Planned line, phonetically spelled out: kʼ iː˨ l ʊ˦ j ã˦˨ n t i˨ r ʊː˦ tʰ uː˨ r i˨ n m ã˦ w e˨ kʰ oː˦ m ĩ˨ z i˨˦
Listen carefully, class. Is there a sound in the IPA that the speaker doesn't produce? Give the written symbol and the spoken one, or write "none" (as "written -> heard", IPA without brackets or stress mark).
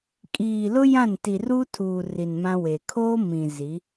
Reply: ʊː˦ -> uː˦